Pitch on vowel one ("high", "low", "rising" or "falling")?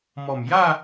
low